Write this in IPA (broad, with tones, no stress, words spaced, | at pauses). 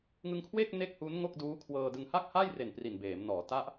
ŋɯ˧ŋkʰweː˥˩k̚ ne˥˩k̚hu˦˥n ŋo˥˩k̚duː˦˥kʰwɤː˧ dɯ˧ŋ ha˥˩k̚haː˥˩jre˨˩n pri˨˩nbeː˩˦mnɔː˩˦ ta˦˥ʔ